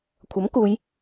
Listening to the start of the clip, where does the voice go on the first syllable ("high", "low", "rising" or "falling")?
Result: rising